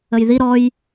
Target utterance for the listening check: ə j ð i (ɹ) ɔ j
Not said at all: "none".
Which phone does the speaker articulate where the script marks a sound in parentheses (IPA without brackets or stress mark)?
ɾ